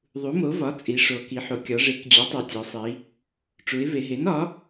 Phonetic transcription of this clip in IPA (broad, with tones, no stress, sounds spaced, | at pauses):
ðˤ u˩˥ m o˩˥ v ɒ˩˥ t͡sʼ i˩˧ ʂ o˩˧ k i˩˧ ħ o˩˧ kʲ ɒ˩˧ ʐ e˩˥ k d͡ʑ o˩˥ tˤ e˩˧ tʲ ɒ˩˧ sˤ i˩˧ | ʈ͡ʂ u˩˧ ɪ̯ v e˩˧ ɦ e˩˥ n ɒ˩˥